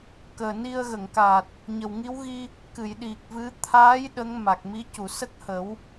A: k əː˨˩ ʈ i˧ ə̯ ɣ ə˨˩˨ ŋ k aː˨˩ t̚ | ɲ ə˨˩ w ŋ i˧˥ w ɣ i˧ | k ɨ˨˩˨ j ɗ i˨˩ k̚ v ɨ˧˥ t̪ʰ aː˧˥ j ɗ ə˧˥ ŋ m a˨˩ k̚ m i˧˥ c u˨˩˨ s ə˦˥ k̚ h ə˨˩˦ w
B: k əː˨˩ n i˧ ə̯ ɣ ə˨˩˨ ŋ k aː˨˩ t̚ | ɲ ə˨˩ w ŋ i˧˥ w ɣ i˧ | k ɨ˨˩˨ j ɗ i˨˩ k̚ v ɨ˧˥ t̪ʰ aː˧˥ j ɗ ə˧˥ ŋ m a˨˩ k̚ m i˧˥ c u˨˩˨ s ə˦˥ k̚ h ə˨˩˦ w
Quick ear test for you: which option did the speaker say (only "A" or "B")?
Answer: B